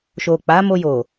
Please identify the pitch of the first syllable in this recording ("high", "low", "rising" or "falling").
low